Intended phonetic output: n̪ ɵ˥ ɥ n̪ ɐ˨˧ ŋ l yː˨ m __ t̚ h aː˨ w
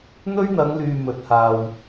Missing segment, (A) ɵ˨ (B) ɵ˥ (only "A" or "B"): A